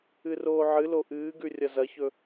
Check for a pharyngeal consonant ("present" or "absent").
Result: present